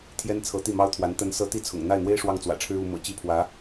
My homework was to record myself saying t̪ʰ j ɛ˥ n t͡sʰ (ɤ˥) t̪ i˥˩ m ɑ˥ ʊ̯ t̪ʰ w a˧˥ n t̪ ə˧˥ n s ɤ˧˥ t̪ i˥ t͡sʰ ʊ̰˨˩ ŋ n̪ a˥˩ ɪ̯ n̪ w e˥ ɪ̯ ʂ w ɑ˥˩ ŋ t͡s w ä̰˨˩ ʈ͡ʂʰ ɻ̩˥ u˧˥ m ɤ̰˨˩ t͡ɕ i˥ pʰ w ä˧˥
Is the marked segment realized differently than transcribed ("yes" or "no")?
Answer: yes